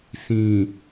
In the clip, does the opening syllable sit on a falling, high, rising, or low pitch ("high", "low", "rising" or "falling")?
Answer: low